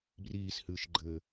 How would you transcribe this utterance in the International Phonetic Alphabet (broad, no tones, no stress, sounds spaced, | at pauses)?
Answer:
b r iː s h ɨː ʃ ɡ͡ǃ ɘː